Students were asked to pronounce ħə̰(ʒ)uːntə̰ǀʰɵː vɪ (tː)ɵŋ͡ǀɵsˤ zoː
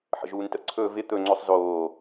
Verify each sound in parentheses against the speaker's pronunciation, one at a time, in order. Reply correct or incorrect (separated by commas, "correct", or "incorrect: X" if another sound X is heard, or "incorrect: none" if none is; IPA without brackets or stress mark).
correct, incorrect: t̪